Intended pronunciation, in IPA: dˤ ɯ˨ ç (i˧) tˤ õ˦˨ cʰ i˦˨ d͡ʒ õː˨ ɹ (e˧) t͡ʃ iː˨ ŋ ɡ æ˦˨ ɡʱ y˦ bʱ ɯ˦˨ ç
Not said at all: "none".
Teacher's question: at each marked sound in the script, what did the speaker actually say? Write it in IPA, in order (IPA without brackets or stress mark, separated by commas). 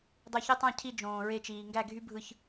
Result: i˧, e˧